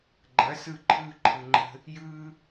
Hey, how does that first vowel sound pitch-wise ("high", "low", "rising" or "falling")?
rising